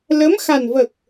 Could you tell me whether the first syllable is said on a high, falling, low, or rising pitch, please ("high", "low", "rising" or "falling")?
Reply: rising